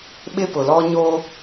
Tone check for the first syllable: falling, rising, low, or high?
high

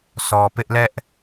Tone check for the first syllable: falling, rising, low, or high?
low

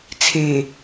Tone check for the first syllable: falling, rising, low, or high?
low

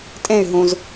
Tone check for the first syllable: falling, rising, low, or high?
falling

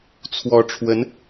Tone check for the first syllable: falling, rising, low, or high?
rising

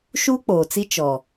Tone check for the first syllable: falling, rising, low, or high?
high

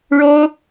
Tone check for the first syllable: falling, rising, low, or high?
high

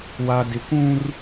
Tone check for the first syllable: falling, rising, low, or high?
low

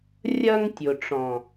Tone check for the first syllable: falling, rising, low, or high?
high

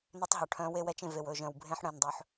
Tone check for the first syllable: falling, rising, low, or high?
high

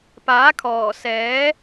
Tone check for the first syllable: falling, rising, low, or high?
rising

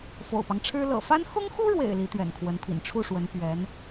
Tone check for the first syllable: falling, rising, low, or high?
low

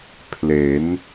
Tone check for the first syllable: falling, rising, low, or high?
rising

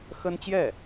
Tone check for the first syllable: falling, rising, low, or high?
high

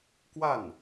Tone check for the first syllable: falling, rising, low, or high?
falling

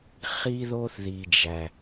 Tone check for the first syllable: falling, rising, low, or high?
high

